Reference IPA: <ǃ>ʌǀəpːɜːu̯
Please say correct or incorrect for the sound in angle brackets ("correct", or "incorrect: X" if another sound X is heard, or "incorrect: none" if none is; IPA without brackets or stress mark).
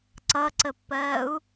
incorrect: ǀ